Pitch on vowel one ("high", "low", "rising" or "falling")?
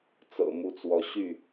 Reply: low